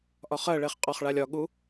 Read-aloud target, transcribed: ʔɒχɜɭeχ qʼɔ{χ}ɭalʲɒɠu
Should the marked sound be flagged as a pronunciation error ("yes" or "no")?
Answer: no